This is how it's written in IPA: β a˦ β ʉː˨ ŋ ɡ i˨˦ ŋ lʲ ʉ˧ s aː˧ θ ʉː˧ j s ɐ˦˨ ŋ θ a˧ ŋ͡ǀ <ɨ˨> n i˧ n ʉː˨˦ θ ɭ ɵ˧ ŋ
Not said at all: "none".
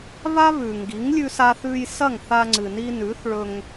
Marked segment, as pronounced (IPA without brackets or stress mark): ɨ˨